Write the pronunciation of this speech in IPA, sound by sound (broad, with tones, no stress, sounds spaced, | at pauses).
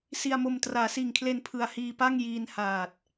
s i˧ a̯ m o˧ m t r aː˩˦ s iː˨˩ ŋ kʰ l e˧ n pʰ ɯ˩˦ a̯ h iː˧ p a˥˩ ŋ j iː˧ n h aː˨˩ t̚